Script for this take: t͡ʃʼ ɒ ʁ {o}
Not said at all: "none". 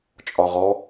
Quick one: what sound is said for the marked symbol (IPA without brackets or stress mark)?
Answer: ɔ